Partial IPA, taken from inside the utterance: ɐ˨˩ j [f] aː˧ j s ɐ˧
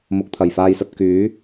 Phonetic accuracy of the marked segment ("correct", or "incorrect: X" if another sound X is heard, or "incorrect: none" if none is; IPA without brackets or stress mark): correct